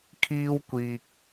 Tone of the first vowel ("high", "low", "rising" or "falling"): high